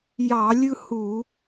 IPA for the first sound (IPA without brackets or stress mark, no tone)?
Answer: j